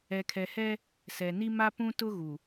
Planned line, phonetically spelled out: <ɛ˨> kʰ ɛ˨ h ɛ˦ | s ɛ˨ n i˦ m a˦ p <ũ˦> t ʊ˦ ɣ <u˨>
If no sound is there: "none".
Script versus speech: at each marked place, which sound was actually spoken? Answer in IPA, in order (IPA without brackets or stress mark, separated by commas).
ɛ˨, ũ˦, u˨